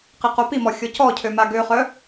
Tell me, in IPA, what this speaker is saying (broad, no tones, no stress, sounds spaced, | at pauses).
q i q o p i m ɔ xʲ ɔ c ɔ cʰ ø m a ɡ ø χ œ